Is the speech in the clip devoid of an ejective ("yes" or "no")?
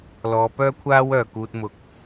yes